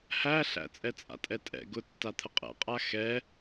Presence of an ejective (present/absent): present